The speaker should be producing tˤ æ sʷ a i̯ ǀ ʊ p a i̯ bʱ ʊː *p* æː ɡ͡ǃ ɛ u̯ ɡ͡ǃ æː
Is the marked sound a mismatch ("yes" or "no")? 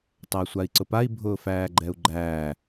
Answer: yes